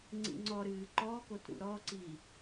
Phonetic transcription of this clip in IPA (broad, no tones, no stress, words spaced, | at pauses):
ŋ͡ǀḭŋ͡ǀɔɾɨː ǃɔkot ɾṵɾɔǀi